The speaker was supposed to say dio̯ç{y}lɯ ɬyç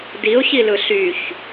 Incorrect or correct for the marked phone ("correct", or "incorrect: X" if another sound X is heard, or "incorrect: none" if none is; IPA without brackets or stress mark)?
incorrect: i